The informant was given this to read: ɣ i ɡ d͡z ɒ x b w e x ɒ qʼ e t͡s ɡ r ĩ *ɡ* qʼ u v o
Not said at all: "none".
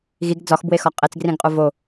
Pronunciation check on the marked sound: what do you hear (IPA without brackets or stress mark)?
ɡ